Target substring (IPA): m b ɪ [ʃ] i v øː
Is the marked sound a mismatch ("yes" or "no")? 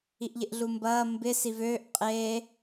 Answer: yes